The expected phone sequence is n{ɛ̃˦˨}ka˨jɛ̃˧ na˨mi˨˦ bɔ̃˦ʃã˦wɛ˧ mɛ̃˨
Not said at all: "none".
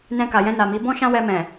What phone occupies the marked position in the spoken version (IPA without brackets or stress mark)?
ɛ̃˧